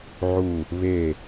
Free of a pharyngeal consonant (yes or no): no